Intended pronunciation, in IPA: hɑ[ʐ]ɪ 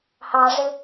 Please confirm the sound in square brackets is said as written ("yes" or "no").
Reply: yes